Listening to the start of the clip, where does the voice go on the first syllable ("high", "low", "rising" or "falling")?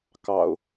low